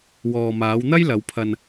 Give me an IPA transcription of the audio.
w ɔː˨ m aː˨˧ w n̪ ɐ˥ j l ɐ˨˧ w pʰ ɐ˧ n

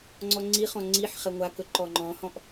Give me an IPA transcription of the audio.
ŋ͡ǀ ɔ ŋ͡ǀ i χ ɔ̃ ŋ͡ǀ i ħ χ ɛ ŋʷ a k ɵ ǃ ɔ ŋ͡ǃ ɔ̃ h ɔ̃ ʔ

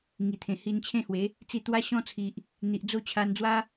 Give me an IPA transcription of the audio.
ŋ i˨˩ t̪ʰ ẽ˨˩ h i˧ n t͡ɕʰ ẽ˥˧ h w e˨˦ | t͡s i˧ t̪ w a˦ ɕ ɔ̃˦ t͡sʰ i˨ ʔ | n̪ i˨ ʔ d͡z o˦ t͡ɕʰ a˧ n d͡z w a˦

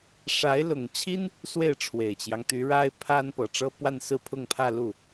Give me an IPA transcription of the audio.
ʂ a˧˥ ɪ̯ l ʊ˨˩ ŋ t͡ɕʰ i˥ n | s w e˥˩ ɪ̯ ʈ͡ʂʰ w e˨˩ ɪ̯ t͡ɕ j ɑ˦ ŋ t̪ y˧˥ ɻ a˥ ɪ̯ pʰ a˥ n p ɤ˨˩ ʈ͡ʂ ɤ˥ p w a˥˧ n s ɹ̩˥˧ pʰ ʊ˥˧ ŋ pʰ ä˥˧ l u˥˩

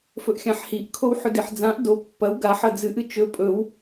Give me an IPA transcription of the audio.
f ɵ ʔ xʲ ã ħ h i ʔ kʰ o w ħ ɵ d i ħ d͡z ã ʔ d o pː ɐ w ɡ a ħ ɐ d͡z ɨ ʔ ɨ t͡ʃ ɵ pʼ ɵ w

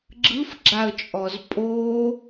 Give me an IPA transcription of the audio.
ɡ͡ǁ ɯ f ɡ͡ǁ a ə̯ t͡ʃʼ ɔ z pʼ o

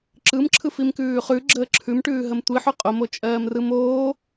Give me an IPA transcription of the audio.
ǁ ɯ m ǁʰ ɯ f i m k ʉː χ ʉ ɡ͡ǁ əː ǁʰ ʉ m ʈ ʉː ɦ ə m tʷ i ħ ʉ qʼ o m o t͡ʃʼ ɜː m r ɯ m oː

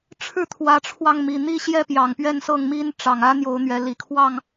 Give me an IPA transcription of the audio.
ʈ͡ʂʰ ɻ̩˥˨ t̪ʰ w ä˨˦ ʈ͡ʂʰ w ɑ˧ ŋ m i˨˩ n̪ i˥˨ ɕ j ɛ˥˨ p j ɑ˨˩ ŋ p ɥ ɛ˥˨ n s ɤ˥˨ ŋ m i˦ n ʈ͡ʂ ɑ˨˩ ŋ ä˦ n̪ j o˨˦ ʊ̯ n̪ ɥ ɛ˨˦ l i˨˩ kʰ w ɑ˥˨ ŋ

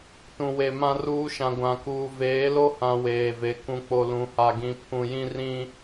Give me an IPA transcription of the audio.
t ũ˨ w e˨ m ã˦ r uː˦ ʃ ã˨ ɡʷ ã˨ k uː˨ v eː˨˦ l o˦ h ã˨ w eː˨ v e˨˦ k ũ˨ k͡p o˨ l ũ˨ h a˨ ɡ ĩ˨ pʰ ũ˨ j ĩ˦ r ĩ˦

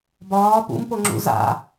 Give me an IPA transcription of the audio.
b ɒː p ṵ m p o ŋ͡ǁ ṵ z a̰

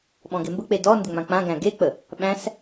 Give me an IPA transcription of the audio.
ɓ ɔ̃ ɡ e m b ə k͡p e d ɔ n d ʏ ŋ͡m ã k͡p ã ɡ æ̃ ɡ e k͡p ə | ɓ æ̃ s

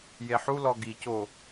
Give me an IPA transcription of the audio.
j e ħ u l ɔ ɡ i c o

